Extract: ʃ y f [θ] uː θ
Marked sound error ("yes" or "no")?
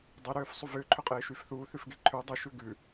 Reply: no